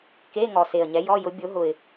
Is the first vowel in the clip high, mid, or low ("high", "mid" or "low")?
mid